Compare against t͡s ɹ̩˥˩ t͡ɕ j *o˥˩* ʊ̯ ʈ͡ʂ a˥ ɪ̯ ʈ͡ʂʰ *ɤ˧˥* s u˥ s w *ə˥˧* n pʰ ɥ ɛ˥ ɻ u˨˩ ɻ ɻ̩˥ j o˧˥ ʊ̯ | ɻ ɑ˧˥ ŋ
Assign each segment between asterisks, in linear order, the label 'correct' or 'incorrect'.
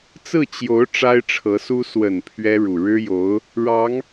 incorrect: o˧˥, correct, incorrect: ə˨˩

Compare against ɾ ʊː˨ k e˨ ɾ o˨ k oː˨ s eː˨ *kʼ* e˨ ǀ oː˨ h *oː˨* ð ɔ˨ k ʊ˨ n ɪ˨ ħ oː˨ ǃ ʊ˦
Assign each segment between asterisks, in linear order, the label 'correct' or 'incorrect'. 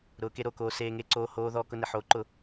incorrect: ŋ, correct

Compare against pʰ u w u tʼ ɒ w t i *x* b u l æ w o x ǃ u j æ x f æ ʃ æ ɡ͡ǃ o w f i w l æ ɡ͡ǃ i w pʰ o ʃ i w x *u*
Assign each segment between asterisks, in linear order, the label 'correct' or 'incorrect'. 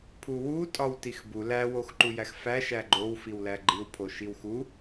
correct, correct

